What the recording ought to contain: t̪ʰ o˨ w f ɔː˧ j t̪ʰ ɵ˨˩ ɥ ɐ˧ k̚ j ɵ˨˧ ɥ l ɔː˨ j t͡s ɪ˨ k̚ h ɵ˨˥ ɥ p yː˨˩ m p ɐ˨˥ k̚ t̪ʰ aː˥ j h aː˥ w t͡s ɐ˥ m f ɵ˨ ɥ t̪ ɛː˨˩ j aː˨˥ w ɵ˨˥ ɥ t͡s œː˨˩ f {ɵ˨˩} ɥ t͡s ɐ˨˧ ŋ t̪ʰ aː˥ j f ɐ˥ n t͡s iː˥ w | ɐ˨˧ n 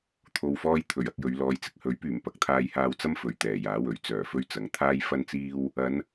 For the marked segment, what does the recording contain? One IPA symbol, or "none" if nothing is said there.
ɵ˥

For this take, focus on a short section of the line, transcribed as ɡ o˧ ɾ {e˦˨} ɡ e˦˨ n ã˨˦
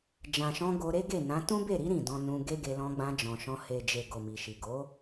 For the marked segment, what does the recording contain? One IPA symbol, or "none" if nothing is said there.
e˦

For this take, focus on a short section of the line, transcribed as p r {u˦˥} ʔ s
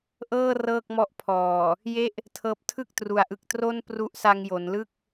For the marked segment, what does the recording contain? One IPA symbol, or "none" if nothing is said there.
u˦˥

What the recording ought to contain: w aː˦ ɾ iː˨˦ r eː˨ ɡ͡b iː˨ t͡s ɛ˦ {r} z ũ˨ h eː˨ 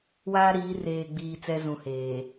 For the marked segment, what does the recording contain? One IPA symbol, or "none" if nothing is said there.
none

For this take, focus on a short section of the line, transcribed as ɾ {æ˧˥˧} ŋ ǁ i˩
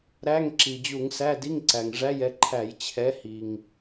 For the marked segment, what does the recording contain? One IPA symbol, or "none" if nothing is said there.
æ˧˥˧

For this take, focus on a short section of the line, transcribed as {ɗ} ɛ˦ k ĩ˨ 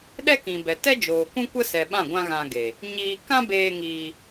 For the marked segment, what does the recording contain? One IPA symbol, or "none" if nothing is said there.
ɗ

